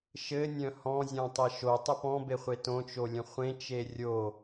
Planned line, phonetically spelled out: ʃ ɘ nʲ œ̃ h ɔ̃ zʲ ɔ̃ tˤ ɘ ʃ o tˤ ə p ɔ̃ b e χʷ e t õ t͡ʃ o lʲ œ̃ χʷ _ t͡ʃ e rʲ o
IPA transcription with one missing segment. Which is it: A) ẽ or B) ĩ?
A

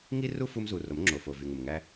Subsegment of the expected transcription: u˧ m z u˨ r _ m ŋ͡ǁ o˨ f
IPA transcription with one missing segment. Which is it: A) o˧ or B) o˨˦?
B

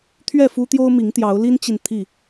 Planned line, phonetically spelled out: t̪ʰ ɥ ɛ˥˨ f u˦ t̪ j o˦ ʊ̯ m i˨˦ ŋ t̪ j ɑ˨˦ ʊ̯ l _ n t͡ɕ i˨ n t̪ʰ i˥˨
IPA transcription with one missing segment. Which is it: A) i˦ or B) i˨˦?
A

